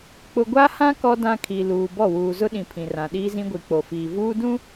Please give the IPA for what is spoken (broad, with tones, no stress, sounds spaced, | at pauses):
k͡p ʊ˨ ɡʷ a˦ h ã˦ k ɔ˦ d ã˦ kʰ i˨ l uː˨ b ɔ˦˨ w uː˨ z ʊ˦ ɗ ĩ˨ pʰ ĩ˨ r ã˨ ɗ iː˦ z ĩ˦ ɡʷ i˨ k͡p o˨ f iː˨ v uː˦ d ũ˦